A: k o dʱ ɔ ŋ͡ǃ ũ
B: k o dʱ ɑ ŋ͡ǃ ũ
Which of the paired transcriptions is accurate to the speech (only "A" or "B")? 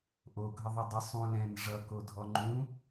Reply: A